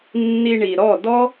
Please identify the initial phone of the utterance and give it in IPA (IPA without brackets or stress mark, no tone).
nː